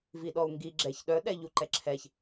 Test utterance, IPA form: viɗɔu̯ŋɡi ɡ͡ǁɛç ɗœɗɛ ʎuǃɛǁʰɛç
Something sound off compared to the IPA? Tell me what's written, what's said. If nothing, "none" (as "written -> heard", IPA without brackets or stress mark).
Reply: none